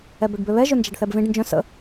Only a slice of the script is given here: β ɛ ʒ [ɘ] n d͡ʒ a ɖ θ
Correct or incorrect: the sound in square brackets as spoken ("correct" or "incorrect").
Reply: incorrect